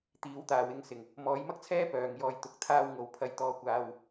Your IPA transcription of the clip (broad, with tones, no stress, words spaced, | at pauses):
t̪iː˨˧wt̪aː˨wɪ˧ŋsɪ˨˩ŋ | mɔː˨˧jmɐ˥k̚t͡sʰɛː˥ pœː˨ŋ jɔː˨jt̪ʊ˨˥k̚ t̪ʰaː˧wŋo˨˧w pʰɐ˧jt̪ɔː˧kʷaː˧w